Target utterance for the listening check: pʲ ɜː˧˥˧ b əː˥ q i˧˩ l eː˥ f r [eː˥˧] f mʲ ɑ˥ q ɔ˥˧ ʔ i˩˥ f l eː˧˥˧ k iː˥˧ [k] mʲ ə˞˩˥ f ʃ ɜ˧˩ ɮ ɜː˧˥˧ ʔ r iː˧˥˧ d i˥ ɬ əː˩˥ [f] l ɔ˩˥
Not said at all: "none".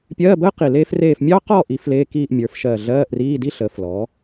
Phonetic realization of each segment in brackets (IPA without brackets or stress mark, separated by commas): eː˥˧, ʔ, f